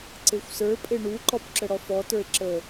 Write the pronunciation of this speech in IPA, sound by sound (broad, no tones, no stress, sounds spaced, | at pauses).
ǀ e xʷ s ə˞ pʼ e ɳ u ǃ ɔ p ǁ ə ɽ ɔ f ɔ t ə˞ e̯ ǁ ə